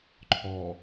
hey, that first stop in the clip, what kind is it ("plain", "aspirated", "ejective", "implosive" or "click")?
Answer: click